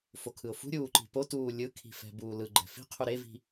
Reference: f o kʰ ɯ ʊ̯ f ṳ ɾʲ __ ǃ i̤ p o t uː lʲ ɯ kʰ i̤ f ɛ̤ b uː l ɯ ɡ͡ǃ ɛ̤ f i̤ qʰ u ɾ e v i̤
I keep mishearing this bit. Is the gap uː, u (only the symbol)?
uː